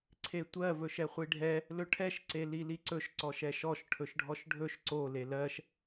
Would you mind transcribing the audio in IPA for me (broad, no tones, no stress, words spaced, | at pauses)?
ǀʰetʷɜ vɵʃɛχʷiɖʱɛ | lɵʈʰɛʃ ǀeliliǀɵʃ ǀɔʃɛʃɔʃ ʈʰɵʃɖʱɔʃɖʱɵʃ ǀo lelɜʃ